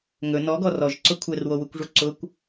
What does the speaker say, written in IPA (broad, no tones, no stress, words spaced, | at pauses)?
ŋɵ nɔɡɔ rɔʒǀʊ kʷʰɛrwowukʷʐu ǀʊkʷ